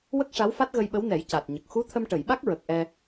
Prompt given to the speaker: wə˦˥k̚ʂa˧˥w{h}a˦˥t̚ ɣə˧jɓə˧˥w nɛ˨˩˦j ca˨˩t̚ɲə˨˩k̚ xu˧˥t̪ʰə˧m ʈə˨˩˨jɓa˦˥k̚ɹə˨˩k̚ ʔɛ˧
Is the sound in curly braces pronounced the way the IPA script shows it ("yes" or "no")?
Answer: no